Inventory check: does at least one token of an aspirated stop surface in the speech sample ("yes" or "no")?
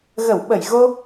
no